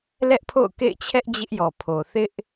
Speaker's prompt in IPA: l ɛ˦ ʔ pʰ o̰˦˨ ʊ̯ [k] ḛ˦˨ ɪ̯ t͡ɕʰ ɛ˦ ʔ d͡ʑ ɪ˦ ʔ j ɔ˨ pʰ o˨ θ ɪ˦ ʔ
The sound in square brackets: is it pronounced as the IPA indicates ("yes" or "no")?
yes